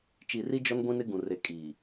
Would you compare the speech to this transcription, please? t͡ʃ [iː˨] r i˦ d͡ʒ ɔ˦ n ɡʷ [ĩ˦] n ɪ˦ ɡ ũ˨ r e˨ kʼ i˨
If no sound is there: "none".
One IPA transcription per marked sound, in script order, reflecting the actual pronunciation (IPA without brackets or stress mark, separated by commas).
i˨, ĩ˦